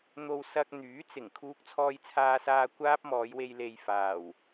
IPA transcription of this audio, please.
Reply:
n̪ o˧ w s ɐ˧ k̚ n̪ yː˨˥ t͡s ɪ˨˩ ŋ kʰ uː˧ k̚ t͡sʰ ɔː˧ j t͡sʰ aː˧ s aː˧ kʷ aː˥ p̚ m ɔː˨˧ j w e˧ j l e˨ j f aː˨˩ w

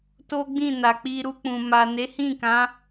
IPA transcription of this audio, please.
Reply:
t o˦ ɡ͡b ĩ˦˨ n a˨ k͡p i˧ ɾ u˧ k͡p ũ˨ m a˨ n e˨˦ h ĩ˦˨ k ã˨˦

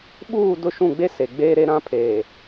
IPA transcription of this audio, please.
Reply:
ɓ uː˦˨ d ʊ˦˨ ʃ ũ˦˨ ɡ͡b e˦ s e˨ ɡ͡b eː˦ ɾ e˦ ɾ ã˦ pʰ eː˨

